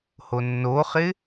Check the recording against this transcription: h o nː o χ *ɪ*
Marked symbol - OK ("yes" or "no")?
yes